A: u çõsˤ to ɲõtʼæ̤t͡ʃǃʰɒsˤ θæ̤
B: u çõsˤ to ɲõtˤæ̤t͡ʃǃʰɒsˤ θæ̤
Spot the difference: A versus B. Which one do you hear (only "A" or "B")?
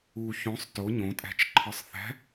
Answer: A